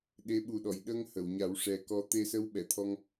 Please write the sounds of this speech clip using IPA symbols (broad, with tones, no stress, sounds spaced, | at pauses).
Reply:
ɗ e˧˥ ɓ u˨˩ ɗ ɔ˨˩˨ j ɗ ə˧ ŋ h ə˨˩˨ w ɲ a˨˩˦ w ʂ ɛ˨˩ k ɔ˧ t̪ e˧ s ə˧˥ w ɓ ɛ˨˩˨ t̪ʰ ɔ˧ ŋ